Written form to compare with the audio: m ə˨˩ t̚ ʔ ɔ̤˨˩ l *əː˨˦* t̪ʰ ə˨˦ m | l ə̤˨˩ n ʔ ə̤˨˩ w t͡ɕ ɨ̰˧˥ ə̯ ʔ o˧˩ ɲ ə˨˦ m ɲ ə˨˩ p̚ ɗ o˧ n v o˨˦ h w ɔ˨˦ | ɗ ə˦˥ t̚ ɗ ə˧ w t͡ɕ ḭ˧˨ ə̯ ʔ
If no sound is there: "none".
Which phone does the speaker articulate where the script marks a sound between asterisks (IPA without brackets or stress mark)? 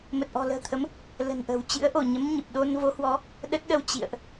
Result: ə̤ː˨˩